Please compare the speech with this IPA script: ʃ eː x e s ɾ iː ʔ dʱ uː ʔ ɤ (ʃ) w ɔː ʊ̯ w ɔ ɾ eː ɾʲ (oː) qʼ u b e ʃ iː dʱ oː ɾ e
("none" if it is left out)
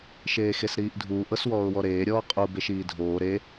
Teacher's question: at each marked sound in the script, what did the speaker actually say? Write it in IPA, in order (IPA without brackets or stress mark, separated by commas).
s, ɔː